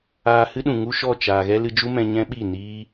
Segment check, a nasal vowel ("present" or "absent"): present